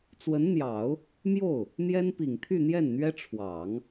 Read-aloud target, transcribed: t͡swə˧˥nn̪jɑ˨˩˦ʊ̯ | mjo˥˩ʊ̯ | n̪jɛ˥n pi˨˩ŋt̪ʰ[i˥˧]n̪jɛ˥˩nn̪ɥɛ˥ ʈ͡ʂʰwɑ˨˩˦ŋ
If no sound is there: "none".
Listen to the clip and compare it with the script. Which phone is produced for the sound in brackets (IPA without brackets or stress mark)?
y˥˧